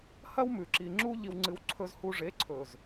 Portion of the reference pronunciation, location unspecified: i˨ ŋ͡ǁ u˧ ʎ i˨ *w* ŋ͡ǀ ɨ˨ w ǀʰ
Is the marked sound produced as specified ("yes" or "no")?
yes